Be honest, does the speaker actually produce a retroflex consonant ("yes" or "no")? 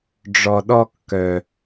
yes